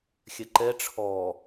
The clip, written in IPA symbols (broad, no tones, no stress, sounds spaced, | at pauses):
xʲ ɛ ǃ ɛ ʈ͡ʂʰ ɔ